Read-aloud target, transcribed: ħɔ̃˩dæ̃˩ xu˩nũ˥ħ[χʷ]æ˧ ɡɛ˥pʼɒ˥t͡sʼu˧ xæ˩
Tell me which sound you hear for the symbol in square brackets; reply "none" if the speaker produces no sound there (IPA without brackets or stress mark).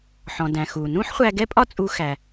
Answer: χʷ